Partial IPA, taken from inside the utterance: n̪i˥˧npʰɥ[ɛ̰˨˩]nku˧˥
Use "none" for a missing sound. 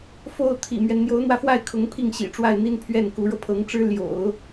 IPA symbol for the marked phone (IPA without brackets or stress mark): ɛ˥˩